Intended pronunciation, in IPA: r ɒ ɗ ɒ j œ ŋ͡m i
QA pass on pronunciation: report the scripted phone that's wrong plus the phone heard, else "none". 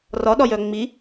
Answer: none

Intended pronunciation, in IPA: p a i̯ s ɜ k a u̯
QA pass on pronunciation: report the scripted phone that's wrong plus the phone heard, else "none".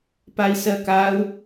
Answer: none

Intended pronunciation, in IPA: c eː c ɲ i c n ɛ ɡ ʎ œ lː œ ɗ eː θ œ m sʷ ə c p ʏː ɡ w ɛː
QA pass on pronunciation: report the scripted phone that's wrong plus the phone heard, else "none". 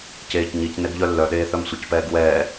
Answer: ʏː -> ɛː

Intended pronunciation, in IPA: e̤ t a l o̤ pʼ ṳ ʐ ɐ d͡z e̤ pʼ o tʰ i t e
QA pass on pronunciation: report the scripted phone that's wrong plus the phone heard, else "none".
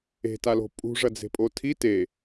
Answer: none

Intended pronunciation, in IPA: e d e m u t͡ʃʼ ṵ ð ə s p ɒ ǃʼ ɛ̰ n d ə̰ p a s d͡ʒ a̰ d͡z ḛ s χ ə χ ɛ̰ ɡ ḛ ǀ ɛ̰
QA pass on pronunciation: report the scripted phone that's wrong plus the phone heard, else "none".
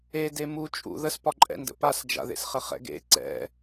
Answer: d͡z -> ð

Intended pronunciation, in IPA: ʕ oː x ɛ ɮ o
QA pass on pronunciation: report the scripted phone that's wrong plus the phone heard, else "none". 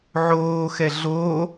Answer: none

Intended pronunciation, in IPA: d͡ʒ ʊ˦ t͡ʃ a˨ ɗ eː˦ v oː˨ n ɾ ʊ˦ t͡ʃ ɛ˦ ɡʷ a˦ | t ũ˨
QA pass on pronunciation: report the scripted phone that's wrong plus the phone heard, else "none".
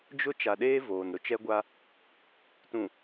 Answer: none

